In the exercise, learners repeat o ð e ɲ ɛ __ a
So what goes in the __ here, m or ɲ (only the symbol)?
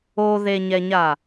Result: ɲ